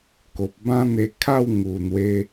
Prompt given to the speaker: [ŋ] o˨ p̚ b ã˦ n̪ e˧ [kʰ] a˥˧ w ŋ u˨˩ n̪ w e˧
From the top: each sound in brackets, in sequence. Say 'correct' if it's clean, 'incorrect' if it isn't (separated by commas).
incorrect, correct